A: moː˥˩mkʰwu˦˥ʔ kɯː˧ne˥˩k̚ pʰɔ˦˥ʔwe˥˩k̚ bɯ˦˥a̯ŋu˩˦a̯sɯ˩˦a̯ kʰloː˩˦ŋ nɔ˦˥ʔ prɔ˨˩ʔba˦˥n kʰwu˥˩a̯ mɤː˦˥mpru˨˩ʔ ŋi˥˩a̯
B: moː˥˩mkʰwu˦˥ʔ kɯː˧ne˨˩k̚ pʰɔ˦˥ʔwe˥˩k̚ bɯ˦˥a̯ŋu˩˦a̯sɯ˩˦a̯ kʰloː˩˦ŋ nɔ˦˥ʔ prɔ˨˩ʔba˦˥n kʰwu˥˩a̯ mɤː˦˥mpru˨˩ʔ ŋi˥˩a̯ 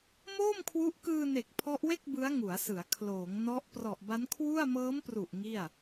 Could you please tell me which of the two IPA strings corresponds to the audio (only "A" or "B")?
B